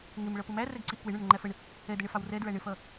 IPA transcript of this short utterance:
ŋɪmɭʌ pʊmæ rɛɡǀiʔkwɪɳʊɳ ɽəŋ͡ǃæfəɳ | ɛdəɳɪfɑw rɛdɹæ ɳɪfʌ

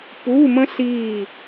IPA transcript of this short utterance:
pu˧˥˧mə̃˥ ɬiː˦˨

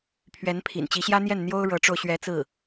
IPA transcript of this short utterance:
pʰɥɛ˧˥npʰḭ˨˩n t͡ɕi˧˥ɕjä˥n̪jɛ˥˩n n̪jo˥ʊ̯ɻɤ˧˥ʈ͡ʂo˧ʊ̯ɕɥɛ˧˥ t͡sɹ̩˥˩

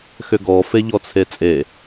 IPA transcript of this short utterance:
xʏɡɔ feʎɔt͡sʰet͡sʼe

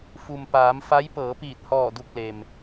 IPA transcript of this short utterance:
fu˩m paː˩˧mfa˧˥j pɤː˩˧piː˧˩t̚hɔː˧˩ du˧˩k̚le˩m

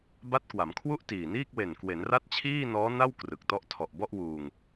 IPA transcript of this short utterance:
ba˦˥t̚kwa˩˦mkʰwu˥˩ʔ tiː˨˩niː˥˩k̚ we˨˩nkwe˩˦nra˦˥t̚ t͡ɕʰiː˥˩nɔː˦˥na˥˩w krɯ˨˩k̚tɔ˥˩ʔ tʰɔ˨˩ʔ bɔ˥˩ʔwuː˧ŋ

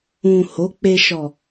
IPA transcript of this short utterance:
ũ˨ ho˨˦k͡pe˧ ʃɔ˨

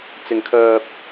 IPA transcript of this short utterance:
t͡sɪ˧ŋkʰœː˧p̚

